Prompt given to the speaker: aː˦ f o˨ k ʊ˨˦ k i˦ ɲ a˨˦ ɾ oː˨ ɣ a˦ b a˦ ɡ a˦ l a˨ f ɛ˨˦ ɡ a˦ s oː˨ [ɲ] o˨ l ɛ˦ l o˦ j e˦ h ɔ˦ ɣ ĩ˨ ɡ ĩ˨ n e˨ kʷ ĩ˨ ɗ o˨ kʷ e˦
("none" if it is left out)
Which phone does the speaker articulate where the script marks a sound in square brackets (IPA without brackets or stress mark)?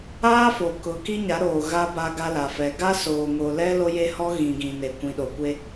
ŋ